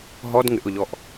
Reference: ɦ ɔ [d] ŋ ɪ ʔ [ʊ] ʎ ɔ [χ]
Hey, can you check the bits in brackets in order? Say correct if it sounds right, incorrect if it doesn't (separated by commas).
correct, correct, incorrect